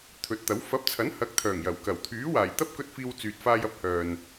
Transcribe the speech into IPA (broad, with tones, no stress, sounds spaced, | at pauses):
t̪ʰ ɵ˨˥ t̚ t̪ ɐ˨˥ w f ɐ˨˥ p̚ t͡sʰ ɐ˨˥ n h ɐ˨˥ k̚ t̪ʰ œː˨˩ ŋ j ɐ˨˩ w k ɐ˨˩ w t̪ʰ yː˨˥ w aː˨˩ j t̪ ɐ˥ p̚ k ɵ˧ t̚ f iː˧ w t͡s yː˨ t̚ f aː˧ j ɐ˧ p̚ h œː˨ n